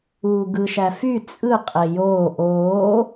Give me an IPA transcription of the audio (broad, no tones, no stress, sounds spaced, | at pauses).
uː ɡ ɯ ʃ æ f y t͡sʼ ɯ qʼ e j oː ʔ oː